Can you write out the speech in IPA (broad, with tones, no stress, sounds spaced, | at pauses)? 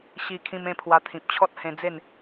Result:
ɕ i˧ kʰ ĩ˧ m ẽ˥˧ pʰ w a˧ t̪ʰ ĩ˨ p̚ t͡ɕʰ ɔ˦ t̚ h ẽ˧ d͡z e˥˧ n